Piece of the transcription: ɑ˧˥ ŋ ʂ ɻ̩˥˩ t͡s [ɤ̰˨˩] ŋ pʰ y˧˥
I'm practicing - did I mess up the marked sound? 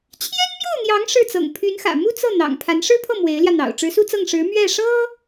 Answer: no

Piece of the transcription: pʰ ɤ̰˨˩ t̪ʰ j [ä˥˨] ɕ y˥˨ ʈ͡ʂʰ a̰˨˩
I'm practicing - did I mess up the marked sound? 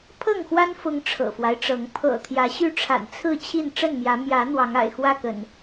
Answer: yes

